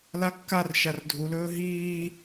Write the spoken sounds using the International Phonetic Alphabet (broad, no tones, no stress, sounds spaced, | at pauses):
l a kː a r ʃ a r dʱ u l ɵː ɦ iː